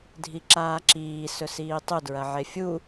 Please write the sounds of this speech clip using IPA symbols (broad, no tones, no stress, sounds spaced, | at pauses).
dʱ i ǁ aː ǁ iː s ɵ s iː tˤ ɵ d ɹ ɐ ʕ e fʲ u